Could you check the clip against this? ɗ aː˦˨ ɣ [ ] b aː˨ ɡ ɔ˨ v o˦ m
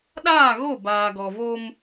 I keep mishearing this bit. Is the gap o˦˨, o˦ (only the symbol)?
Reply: o˦˨